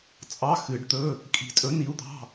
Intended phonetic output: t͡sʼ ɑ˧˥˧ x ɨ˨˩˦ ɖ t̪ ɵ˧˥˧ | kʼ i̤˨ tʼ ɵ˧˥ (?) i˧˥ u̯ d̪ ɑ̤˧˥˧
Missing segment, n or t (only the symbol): n